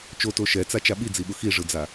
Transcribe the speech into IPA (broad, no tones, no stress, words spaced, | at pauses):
t͡ʃoto ʃɛt͡sat͡ʃa ɓid͡ziɓʊ xiʐɯd͡za